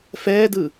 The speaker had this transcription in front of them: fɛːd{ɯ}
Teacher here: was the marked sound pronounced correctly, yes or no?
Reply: yes